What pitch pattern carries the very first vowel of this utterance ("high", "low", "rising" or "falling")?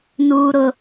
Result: high